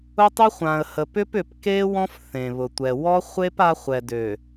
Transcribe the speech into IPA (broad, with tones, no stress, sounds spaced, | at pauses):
ʊ˦ tˤ y˦ χʷ ã˨ ə̯ h ə˨ p ʏ˦ p ʏ˨ p k e˦ w ɔ̃˦ f θ ẽ˨ β ʊ˨ tʷ ɛ˨ w ɔ˦ χʷ e˦ p a˦ χʷ ɛ˨ d ø˨